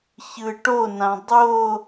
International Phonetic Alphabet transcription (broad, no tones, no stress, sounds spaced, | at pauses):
ç ɯ ʈ o n ã dˤ o